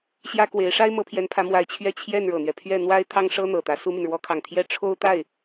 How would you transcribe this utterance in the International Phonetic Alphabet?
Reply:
ɕ j ä˥ k w e˧˥ ɪ̯ ʂ a˥ ɪ̯ m ɤ˧˥ pʰ j ɛ˧˥ n pʰ ä˧˥ m w a˧˥ ɪ̯ t͡ɕʰ ɥ ɛ˥˧ t͡ɕʰ j ɛ˥˩ n ɻ ɤ˨˩ n̪ ɥ ɛ˦ pʰ ɥ ɛ˥˩ n̪ w a˥ ɪ̯ t̪ʰ ɑ˥ ŋ ʂ ɤ˥ n̪ ɤ˨˩ t̪ ä˧˥ s u˥ m y˨ n ɻ w ɔ˥ kʰ ɑ˥˩ ŋ t̪ʰ j ɛ˥ ʈ͡ʂʰ o˥ ʊ̯ t̪ a˥˩ ɪ̯

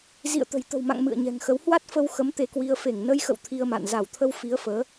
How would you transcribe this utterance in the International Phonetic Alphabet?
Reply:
z ḭ˧˨ ə̯ t̪ ə̤˨˩ j t̪ ə̤˨˩ w m a̰˧˨ ŋ m ɨ̰˧˨ ə̯ ɲ ɛ̤˨˩ ŋ x ə˨˦ w h w a˦˥ t̚ f ə˧ w x ə˨˦ m t̪ e˧ k w i˧ ə̯ f e˧˩ ŋ n ə˧ j x ə̰˧˨ w t̪ʰ i˧ ə̯ m a̰˧˨ n z a˧˩ w t̪ʰ ə˧ w f i˨˦ ə̯ f əː˨˦

